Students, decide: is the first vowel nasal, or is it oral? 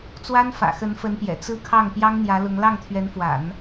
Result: oral